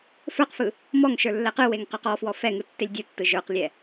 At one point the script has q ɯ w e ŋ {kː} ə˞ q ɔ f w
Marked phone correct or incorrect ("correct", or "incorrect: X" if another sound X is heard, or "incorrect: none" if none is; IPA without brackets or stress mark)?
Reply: incorrect: q